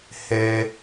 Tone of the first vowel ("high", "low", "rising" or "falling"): high